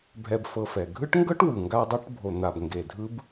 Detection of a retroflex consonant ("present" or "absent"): present